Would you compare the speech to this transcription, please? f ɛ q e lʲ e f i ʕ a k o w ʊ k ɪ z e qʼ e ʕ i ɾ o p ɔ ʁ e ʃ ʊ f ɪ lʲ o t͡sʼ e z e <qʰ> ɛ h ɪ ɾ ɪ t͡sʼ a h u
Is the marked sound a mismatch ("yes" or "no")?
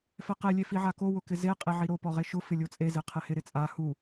no